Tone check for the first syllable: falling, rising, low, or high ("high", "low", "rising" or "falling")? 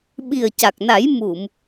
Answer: low